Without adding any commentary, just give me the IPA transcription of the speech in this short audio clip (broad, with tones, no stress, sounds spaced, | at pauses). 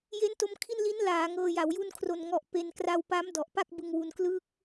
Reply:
j e˦˥ n t o˧ m kʰ i˥˩ n l i˦˥ n l aː˩˦ ŋ ɤː˧ j a˩˦ w j u˥˩ n kʰ r o˨˩ n ŋ ɔ˨˩ ʔ p e˧ n k r a˧ w p a˦˥ m d ɔ˨˩ ʔ p a˥˩ k̚ b ɯ˧ ŋ w u˧ n k l ɯː˦˥ k̚